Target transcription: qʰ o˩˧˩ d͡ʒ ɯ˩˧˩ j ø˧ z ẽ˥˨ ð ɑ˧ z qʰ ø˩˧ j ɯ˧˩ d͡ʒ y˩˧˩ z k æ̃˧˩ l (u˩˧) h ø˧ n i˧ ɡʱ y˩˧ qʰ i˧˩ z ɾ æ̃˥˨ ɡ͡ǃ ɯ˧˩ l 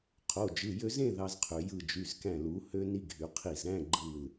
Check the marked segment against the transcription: correct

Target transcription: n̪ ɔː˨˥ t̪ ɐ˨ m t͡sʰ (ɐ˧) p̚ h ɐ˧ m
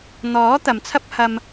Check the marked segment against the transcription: incorrect: ɐ˥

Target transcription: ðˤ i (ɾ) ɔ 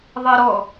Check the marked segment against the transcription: correct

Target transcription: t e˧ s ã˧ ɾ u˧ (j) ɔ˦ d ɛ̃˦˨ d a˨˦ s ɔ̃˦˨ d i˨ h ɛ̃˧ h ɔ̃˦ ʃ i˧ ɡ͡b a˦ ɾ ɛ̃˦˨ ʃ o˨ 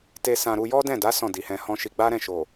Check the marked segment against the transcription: correct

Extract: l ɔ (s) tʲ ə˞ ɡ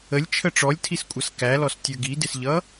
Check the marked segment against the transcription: correct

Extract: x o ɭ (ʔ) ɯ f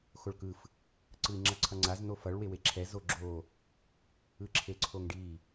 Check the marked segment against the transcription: incorrect: k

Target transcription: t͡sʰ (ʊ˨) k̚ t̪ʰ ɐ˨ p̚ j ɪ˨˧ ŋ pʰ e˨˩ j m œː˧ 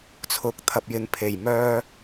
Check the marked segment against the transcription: correct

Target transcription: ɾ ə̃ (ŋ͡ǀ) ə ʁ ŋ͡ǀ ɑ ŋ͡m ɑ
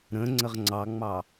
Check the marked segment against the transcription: correct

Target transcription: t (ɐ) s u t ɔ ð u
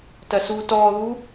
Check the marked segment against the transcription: correct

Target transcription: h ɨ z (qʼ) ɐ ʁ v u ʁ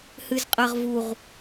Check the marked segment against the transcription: correct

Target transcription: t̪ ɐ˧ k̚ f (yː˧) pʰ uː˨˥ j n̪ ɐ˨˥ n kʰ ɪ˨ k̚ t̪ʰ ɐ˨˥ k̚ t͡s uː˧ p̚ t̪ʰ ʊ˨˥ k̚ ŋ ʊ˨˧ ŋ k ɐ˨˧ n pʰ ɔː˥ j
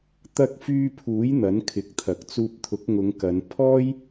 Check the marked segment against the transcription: correct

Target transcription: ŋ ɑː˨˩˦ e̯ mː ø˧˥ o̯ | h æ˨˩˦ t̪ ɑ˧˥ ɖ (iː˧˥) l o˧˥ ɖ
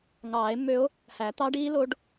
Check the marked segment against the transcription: correct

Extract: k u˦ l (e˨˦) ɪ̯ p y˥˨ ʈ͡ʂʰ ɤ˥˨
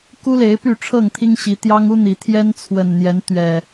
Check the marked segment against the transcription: correct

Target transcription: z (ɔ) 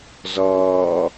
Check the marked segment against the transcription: incorrect: ɔː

